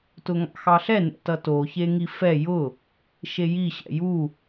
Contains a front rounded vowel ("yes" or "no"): no